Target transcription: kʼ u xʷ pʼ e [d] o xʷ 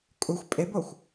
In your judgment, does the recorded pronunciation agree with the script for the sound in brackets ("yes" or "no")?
no